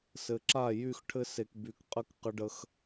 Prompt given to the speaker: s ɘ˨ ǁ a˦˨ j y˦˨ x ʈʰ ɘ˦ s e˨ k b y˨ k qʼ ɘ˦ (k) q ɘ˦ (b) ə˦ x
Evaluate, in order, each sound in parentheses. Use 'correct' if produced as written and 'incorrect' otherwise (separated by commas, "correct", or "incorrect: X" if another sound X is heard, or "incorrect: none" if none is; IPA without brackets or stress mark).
correct, incorrect: ɖ